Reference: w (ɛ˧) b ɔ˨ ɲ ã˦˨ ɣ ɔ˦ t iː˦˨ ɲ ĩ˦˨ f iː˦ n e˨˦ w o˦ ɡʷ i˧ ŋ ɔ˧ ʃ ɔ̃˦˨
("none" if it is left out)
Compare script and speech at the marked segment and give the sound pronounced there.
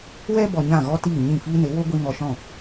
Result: ɛ˧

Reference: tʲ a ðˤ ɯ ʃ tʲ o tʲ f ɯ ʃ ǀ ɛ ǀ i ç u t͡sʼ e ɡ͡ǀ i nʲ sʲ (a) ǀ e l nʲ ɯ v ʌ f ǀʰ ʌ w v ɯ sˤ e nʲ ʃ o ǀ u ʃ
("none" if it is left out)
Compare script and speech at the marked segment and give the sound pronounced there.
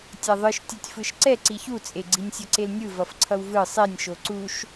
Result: ʌ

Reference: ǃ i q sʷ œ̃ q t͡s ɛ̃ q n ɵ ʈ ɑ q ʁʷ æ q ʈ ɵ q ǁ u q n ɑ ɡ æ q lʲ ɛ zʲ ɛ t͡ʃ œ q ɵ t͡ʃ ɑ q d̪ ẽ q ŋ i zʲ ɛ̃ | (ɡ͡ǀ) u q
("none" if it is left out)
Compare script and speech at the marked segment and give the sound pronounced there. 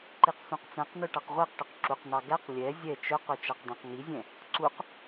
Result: ǀ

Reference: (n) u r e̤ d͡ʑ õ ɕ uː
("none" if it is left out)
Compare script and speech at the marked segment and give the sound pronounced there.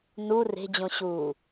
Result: n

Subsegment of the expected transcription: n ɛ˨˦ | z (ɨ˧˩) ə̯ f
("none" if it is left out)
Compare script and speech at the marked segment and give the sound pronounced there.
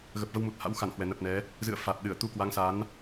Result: ɨ̰˧˨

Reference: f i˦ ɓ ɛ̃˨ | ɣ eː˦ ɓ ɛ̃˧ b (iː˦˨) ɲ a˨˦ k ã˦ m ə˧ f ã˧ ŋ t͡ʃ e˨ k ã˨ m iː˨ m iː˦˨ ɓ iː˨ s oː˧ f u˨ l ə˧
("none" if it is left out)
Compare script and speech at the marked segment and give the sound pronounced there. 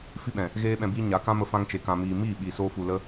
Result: iː˦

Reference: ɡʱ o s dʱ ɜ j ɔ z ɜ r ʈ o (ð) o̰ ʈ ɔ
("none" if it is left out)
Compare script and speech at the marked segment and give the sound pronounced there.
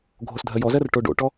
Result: ɖ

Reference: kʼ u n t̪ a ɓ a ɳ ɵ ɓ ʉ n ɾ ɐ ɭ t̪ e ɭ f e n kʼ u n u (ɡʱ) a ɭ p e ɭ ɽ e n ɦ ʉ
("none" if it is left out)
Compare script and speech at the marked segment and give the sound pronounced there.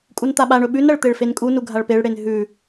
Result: ɡʱ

